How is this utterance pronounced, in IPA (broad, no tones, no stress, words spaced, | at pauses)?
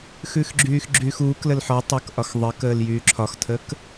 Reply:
xʉxɡ͡ǁyːxɡ͡ǁyːxuːk ləlħɔ tˤɤkʔɒx ðˤə kəːljyːǁʰɒxtʰək